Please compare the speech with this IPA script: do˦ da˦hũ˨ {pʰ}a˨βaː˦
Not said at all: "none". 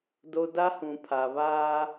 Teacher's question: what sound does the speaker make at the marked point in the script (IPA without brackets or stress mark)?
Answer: pʰ